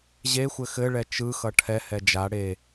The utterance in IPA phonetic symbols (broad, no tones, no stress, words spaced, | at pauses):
ʑexʷɘ xɘɭɛ t͡ʃɯxʌ ʈʰɛ hɛd͡ʒa ɽe